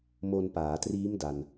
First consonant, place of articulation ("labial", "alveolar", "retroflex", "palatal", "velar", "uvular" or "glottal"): labial